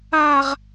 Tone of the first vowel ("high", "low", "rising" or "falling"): high